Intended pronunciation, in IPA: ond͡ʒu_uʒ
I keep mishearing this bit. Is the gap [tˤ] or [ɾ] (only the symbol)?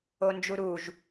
ɾ